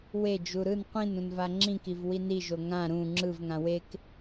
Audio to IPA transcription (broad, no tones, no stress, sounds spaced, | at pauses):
w e d͡ʒ u ɾ ɯ n qʷ ĩ n ũ n v a ŋ͡ǁ ĩ k i v w i n i ʒ o ŋ ã ɾ ũ ŋ͡ǁ ɯ v ŋ ã w e k